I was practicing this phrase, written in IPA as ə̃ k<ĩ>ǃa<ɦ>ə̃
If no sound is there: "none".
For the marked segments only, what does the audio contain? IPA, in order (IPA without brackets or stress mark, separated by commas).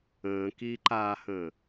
i, h